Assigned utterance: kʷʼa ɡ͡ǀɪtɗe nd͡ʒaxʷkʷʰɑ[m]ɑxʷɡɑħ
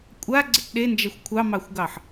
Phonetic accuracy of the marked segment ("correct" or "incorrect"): correct